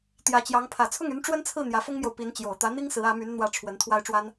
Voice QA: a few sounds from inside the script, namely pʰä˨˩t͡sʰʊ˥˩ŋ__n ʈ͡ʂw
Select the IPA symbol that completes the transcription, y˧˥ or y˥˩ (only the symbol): y˧˥